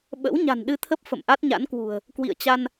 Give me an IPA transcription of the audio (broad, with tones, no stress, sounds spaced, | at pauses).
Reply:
ɓ ə̰˧˥ w ɲ a̤˨˩ n ɗ ɨ˧ t̪ʰ ə˦˥ p̚ f ə̰˧˨ m ʔ a˦˥ t̚ ɲ a̰˧˥ n k w ṳ˨˩ ə̯ | k w ḭ˧˨ ə̯ t͡ɕ a˧ n